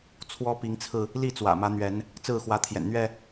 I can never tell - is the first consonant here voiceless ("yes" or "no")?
yes